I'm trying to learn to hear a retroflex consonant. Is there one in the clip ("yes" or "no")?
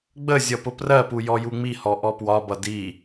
no